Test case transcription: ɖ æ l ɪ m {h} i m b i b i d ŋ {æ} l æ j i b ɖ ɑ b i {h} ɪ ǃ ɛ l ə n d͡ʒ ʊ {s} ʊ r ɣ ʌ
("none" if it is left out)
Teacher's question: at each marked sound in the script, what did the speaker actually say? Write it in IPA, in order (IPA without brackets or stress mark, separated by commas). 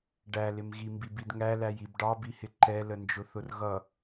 ɣ, æ, h, θ